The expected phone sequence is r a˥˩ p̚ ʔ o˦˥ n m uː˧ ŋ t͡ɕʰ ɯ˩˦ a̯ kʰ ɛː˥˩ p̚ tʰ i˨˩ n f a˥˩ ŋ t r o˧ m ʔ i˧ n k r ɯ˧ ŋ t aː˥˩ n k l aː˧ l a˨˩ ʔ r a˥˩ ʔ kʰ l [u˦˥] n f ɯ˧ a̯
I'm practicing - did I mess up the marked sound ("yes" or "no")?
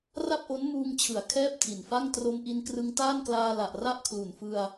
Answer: yes